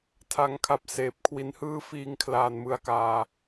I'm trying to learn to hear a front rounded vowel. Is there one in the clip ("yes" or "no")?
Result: no